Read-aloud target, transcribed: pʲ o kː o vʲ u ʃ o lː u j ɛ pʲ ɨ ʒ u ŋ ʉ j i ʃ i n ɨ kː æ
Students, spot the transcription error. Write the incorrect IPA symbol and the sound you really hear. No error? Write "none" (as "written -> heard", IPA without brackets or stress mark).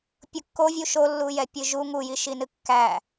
ʉ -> u